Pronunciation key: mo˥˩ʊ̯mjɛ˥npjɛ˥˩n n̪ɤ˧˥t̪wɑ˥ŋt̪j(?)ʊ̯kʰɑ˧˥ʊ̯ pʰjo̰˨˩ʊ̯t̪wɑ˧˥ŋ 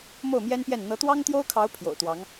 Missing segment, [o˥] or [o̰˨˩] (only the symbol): o˥